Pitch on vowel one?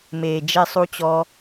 low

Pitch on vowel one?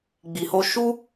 low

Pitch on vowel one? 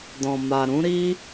low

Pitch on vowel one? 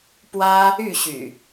high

